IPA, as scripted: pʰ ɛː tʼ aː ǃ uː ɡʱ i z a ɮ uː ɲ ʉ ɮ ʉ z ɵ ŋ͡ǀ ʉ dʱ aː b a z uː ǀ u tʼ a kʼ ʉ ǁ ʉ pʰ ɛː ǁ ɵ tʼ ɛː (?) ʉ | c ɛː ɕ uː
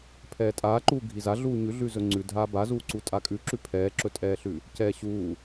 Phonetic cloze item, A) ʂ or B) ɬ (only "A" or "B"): B